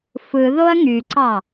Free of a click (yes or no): no